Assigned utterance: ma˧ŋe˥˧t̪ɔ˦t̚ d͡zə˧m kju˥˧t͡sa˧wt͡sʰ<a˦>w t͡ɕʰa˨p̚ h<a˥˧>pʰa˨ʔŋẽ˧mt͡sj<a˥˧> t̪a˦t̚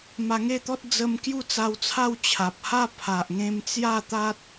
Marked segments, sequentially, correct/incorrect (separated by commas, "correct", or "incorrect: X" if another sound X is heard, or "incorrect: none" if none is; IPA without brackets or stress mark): incorrect: a˥˧, correct, correct